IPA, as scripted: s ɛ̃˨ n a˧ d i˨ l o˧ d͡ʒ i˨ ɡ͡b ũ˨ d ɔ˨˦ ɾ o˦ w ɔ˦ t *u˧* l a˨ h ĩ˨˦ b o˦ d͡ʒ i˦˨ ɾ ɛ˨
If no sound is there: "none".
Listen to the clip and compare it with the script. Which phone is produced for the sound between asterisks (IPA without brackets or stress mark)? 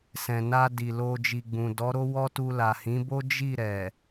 u˧